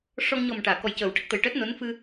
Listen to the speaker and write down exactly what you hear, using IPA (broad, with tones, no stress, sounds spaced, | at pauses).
ʂ ɔ˧ ŋ ɲ ɔ˨˩ m ʈ aː˨˩˨ k ɔ˨˩ j c əː˨˩˦ w ʈ ə˦˥ k̚ t̪ ə˨˩ j ʈ əː˦˥ t̚ n o˧˥ n f ɨ˧